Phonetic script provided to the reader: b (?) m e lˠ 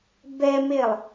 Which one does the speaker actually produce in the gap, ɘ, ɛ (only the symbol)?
ɛ